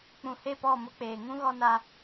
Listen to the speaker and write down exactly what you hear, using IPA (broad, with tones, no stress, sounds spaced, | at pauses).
k͡p ũ˨ h e˦˨ p ɔ˦˨ m ʊ˦ k͡p eː˨ ŋ ũ˦ ɣ ɔ˦ n a˦